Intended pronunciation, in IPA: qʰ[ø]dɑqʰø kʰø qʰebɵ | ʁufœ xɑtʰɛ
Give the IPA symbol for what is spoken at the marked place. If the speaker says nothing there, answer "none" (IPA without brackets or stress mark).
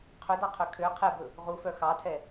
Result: ø